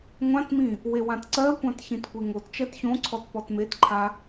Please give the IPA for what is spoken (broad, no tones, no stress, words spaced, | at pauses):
ŋʷãtmĩ | wewãtǀɜkʷãt çĩtkʷeŋott͡ʃɜt çõǀʰɔt pɔtmetǃʰa